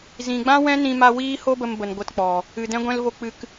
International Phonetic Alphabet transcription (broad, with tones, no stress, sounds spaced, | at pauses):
z ĩ˨ ɡ͡b ã˦ w ɛ̃˦ n ĩ˧ m a˧ w iː˦ h o˦ b ə˧ m b ə˨ n ɡʷ ə˧ t k͡p ɔ˨ | ɨ˨ d ɛ̃˧ ɡʷ ɛ̃˧ l v o˧ k͡p ɨ˧ k